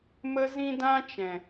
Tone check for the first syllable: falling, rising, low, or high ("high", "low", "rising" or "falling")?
high